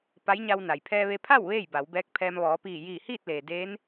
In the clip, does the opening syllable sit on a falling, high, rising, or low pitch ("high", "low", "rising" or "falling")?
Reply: rising